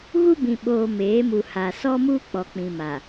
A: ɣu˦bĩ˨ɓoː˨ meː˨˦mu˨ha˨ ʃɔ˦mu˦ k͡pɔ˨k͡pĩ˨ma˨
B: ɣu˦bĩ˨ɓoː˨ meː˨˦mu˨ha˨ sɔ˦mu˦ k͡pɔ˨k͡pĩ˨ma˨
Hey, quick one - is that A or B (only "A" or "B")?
B